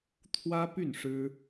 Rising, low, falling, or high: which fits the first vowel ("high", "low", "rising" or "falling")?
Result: high